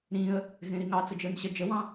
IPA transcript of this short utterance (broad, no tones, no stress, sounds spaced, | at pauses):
ɾ ĩ ə̯ | ɣ ẽ ɾ i ŋ ɑ t͡s ə d͡ʒ ə˞ n ɕ ə d͡ʒ ə w ɑ̃